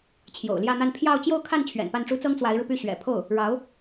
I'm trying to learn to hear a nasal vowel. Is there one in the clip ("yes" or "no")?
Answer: no